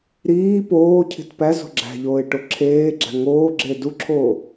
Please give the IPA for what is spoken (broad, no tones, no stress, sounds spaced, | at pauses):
ɾ iː p oː cʰ i̤ t p æ z o̤ ɡ͡ǁ æ̤ ʎ oː ɪ̯ ʈ o ǁʰ eː ɡ͡ǁ æ̤ ŋ oː ɡ͡ǁ eː d u ǁʰ oː